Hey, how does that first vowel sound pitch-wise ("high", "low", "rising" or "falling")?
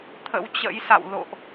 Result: rising